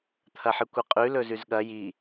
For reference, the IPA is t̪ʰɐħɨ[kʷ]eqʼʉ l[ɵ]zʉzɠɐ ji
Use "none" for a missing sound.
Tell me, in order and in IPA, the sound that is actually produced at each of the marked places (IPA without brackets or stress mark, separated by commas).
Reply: kʷ, ɵ